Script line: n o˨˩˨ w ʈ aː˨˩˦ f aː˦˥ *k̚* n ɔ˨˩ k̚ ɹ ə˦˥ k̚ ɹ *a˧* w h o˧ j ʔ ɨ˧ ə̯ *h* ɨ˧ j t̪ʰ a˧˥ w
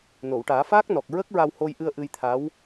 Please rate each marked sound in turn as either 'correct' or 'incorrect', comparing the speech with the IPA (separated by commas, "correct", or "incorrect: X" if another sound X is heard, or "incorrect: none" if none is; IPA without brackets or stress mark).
correct, correct, incorrect: ʔ